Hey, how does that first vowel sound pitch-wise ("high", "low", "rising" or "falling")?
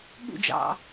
falling